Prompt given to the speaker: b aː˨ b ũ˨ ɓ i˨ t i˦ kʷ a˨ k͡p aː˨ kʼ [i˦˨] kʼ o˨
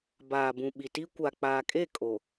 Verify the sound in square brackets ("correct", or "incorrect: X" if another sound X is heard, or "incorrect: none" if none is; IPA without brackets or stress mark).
incorrect: e˦˨